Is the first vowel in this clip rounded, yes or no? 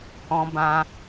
yes